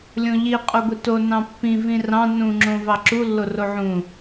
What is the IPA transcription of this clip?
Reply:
lʲ õ ʎ i qʼ o ɡʷ i t o n ɑ̃ pː ĩ v ĩ r ɑ̃ n ũ ŋ͡ǁ õ v ɑ ǁ u lː o r o ʕ ũ

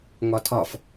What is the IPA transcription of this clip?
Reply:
ŋ ɒ tʰ ɒ f

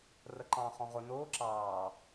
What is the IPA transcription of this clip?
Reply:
r ə ǃ ɑ̃ χ ɔ̃ ʁ ʊ n ʊː ǁ ɑː

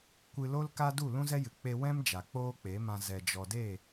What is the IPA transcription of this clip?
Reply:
kʷ ɨ˧ l o˦ l k a˦ d u˦˨ l ũ˦ z ɛ˦ j ɨ˨ k͡p e˧ w ɛ̃˦ m d͡ʒ a˨ k͡p oː˦ k͡p e˨˦ m ã˧ z ɛ˨ d͡ʒ ɔ˨ d e˦˨

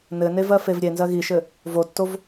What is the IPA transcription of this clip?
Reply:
n ɘ n e v ɜ f e v ɾʲ e n z ɜ ɣ i ʃ ɘ | v o tː o v

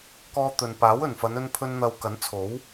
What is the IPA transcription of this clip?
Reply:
k ɔː˧ t̪ ɵ˨ n p aː˨˥ w ɵ˨˩ n f ɐ˨˧ n ɵ˧ n pʰ ɵ˧ n n̪ ɐ˧ w k ɐ˨˥ n t͡sʰ o˨˥ w

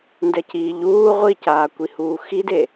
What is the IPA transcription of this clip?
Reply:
n d ɛ c iː ʎ uː ʁʷ i c aː kʷ i h uː x i d e

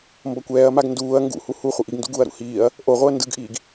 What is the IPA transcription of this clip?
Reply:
m b ʌ kʷ ɛː ɐ̯ m a ɡ n d uː ɐ̯ ŋ ɡ ṵ h u h u χʷ ɯ ʔ i ɡ n d ṵ ɡ u ɐ̯ ɾ ṵ h iː ɐ̯ | ʔ o ʁʷ ɯ ɐ̯ n d ɯ ɡ ʔ iː ɡ

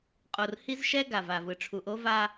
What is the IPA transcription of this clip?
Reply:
qʼ o˨ r h i˦ z ʃ ɛ˦ ɡ a˨ v a˨ v ɯ˨ ʈ͡ʂʰ u˨ ʔ o˦ v a˦

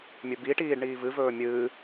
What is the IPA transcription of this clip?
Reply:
mʲ ɵ b i ʈ iː ɖ ɳ iː v ɨ v ɵː mʲ ɨː

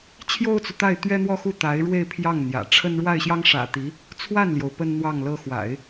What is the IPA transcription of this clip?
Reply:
t͡ɕʰ j o˥ ʊ̯ t͡s u˨ t̪ a˥˩ ɪ̯ t̪ ɥ ɛ˥ n̪ w ɔ˥ x u˥˩ t̪ a˧˥ ɪ̯ ɻ w e˥˧ ɪ̯ pʰ j ɑ˥˩ ŋ n̪ j ä̰˨˩ ʈ͡ʂʰ ə˥ n ɻ w a˥˩ ɪ̯ ɕ j ɑ˥ ŋ ʂ ä̰˨˩ t̪ i˧˥ | t͡sʰ w a˥˩ n l j o˩ ʊ̯ p ə˥ n n̪ w ɑ˥˩ ŋ l ɤ˥ x w a̰˨˩˦ ɪ̯

